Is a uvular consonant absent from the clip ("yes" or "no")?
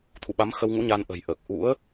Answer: yes